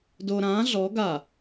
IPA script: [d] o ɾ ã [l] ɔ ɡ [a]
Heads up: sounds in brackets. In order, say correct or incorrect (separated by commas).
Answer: correct, incorrect, correct